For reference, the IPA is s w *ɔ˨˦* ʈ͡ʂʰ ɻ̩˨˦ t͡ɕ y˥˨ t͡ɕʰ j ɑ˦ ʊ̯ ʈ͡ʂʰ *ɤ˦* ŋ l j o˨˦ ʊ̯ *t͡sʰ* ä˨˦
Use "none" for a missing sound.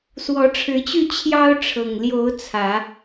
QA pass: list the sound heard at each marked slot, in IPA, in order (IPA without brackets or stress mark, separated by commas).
ɔ˨˦, ɤ˨˩, t͡sʰ